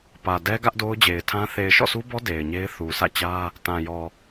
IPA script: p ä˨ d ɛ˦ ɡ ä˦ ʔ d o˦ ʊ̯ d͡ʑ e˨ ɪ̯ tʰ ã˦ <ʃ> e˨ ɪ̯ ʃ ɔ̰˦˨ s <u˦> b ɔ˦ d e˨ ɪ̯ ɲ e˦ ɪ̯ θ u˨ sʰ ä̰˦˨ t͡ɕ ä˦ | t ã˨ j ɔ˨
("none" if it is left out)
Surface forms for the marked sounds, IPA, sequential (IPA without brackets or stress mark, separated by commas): θ, u˦